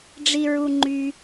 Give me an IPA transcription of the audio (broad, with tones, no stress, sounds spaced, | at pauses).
ɖ͡ʐ i˩ ɹ u˩ ŋ͡ǃ y˩